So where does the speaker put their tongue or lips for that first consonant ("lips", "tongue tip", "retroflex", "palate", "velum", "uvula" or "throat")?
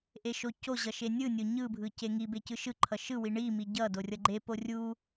throat